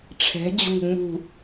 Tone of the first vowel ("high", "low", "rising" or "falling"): rising